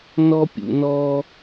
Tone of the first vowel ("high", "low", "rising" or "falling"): high